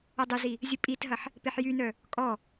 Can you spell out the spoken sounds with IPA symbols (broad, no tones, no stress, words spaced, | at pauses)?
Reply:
ɐdˤəzi | zʲəpʼitɦɐħ | peħjynœ | kʼɔ